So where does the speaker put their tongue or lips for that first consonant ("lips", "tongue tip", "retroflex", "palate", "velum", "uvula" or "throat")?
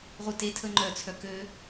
uvula